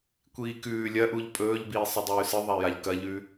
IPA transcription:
kʷ iː k ʉː lʲ ɐ ʔ u ʎ pʼ ɵː ʎ b iː sˤ ɨ dˤ ʉː s ɨ ðˤ a j a ʎ k ɐ ʎ ʉ

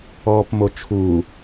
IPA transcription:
ɔː p m o t͡ʃʰ u

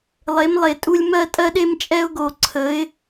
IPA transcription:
lˠ e˧˥ m lˠ e˧ tʼ u˥ lʲ m ɜ˥ tʼ ɜ˥ ɗ e˥ m t͡ʃʼ ɛ˥ ʊ̯ ɡ o˧ ǀʰ ə˧˥ ɪ̯

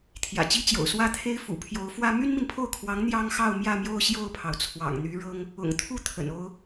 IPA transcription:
t̪ʰ j ä̰˨˩ t͡ɕ i˥ t͡ɕ j o̰˨˩ ʊ̯ s w ä˥˩ t̪ʰ e˥ ɪ̯ f ṵ˨˩ pʰ j o˧˥ ʊ̯ f w ä˥ m y˥ n m i˨ n pʰ o˥˩ ʊ̯ kʰ w ɑ˧˥ ŋ n̪ j ɑ˥ ŋ x ɑ˥˧ ʊ̯ m j ä˥˧ m j o˥˧ ʊ̯ ɕ j o˥˩ ʊ̯ pʰ ɑ˩ ʊ̯ t͡sʰ w ɑ̰˨˩ ŋ n̪ y˧˥ ɻ ɤ˥ ŋ | ʊ̰˨˩ ŋ t̪ʰ u˥˩ t̪ʰ ə̰˨˩ n o˥ ʊ̯

